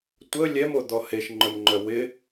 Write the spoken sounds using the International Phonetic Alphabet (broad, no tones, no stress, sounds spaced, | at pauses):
tʷ ə lʲ ɛ m o d̪ ɔ h e ʃ ŋ͡ǃ œ m ŋ͡ǃ œ w ɪ